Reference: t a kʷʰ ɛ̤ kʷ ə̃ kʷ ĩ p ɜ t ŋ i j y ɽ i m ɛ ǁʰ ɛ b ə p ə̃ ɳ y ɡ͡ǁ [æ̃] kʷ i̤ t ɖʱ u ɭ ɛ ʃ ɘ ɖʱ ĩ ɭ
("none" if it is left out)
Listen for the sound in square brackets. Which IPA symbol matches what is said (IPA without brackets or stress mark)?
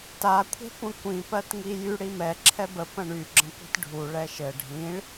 ə̃